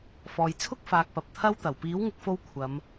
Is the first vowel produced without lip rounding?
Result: no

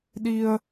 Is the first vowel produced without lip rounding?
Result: yes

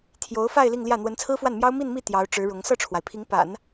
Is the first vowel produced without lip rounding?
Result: no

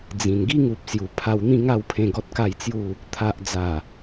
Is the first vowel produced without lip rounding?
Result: yes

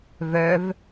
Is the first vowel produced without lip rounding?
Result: no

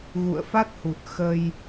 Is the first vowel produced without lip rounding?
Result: no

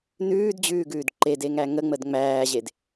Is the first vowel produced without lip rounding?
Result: no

